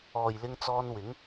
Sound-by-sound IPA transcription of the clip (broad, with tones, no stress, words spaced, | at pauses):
ɔː˨jlɪ˧ŋt͡sɔː˧n wɪ˨˧ŋ